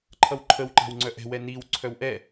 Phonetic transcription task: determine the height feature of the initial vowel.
mid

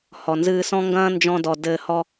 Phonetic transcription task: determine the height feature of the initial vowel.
mid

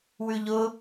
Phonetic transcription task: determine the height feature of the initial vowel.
high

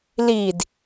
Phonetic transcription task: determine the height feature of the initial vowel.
high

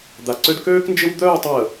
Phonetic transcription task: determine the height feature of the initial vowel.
low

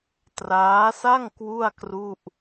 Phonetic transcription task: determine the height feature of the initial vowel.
low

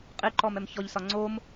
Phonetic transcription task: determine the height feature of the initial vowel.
high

